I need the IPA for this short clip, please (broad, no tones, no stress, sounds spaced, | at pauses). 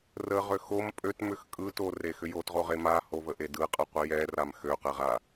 r ə ʁ ø x o m pʼ ø t m ʏ x kʼ ɯ t o r e x ʏ j o t ʁ o ʁ e m a h o v ə ʔ e d ɯ qʼ ɯ qʷ i j ɛ r a m x ø q ɛ ʁ a